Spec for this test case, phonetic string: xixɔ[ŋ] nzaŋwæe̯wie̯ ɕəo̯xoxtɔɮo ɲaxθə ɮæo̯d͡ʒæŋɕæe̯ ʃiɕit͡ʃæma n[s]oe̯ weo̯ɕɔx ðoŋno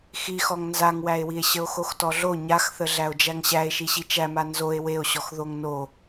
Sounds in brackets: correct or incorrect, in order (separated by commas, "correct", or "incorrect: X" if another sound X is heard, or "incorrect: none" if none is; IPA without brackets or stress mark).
correct, incorrect: z